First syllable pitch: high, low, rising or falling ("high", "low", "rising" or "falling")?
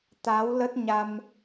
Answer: rising